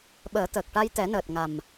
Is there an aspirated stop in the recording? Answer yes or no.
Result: no